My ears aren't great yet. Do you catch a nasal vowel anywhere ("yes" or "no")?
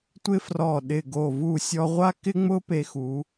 no